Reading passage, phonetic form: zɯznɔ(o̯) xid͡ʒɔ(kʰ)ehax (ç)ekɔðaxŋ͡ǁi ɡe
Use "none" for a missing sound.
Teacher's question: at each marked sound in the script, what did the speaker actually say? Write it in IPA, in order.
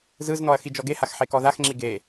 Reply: ɐ̯, ɡ, ħ

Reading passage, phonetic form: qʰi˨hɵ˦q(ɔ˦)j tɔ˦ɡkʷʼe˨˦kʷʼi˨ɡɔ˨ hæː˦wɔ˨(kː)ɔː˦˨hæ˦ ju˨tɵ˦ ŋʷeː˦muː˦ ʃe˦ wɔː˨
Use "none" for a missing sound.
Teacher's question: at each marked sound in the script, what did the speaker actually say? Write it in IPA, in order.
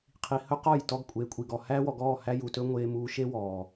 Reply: ɔ˦˨, ɡ

